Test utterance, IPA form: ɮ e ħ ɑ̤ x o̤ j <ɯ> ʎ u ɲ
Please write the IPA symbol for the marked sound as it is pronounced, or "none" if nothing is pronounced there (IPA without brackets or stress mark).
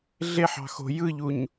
ɯ